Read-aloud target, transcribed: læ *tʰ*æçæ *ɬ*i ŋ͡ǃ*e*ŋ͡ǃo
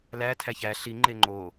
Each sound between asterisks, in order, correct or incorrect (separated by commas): correct, correct, correct